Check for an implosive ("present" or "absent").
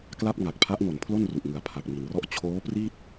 absent